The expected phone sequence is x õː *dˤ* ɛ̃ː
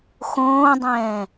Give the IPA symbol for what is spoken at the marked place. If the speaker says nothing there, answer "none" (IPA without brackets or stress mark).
dˤ